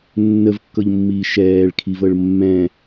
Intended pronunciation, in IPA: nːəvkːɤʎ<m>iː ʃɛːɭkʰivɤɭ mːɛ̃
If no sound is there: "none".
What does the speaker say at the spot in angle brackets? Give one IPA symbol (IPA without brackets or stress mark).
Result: mː